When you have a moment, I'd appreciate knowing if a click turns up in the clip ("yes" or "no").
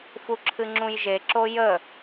yes